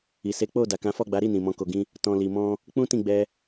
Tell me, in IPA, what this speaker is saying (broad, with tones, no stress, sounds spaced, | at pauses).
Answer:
i˨ s e˨˦ k͡p o˦˨ d a˨ k ã˨˦ f ɔ˦˨ ɡ͡b a˨˦ ɾ i˦˨ n ĩ˨ m ɔ̃˧ k o˨ ɡ ĩ˧ | t ɔ̃˨ l i˨ m ɔ̃˧ | k͡p ũ˦ t ĩ˦˨ ɡ͡b ɛ˧